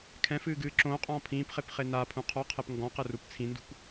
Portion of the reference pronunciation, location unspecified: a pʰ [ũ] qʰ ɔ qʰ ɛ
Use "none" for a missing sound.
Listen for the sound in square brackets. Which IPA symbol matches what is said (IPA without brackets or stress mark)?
ũ